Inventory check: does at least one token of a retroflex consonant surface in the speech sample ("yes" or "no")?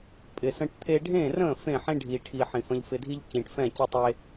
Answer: yes